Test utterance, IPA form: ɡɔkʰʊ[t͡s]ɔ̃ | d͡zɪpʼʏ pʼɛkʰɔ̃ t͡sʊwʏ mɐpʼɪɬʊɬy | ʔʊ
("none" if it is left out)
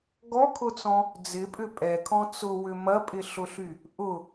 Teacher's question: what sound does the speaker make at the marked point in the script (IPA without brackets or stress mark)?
t͡s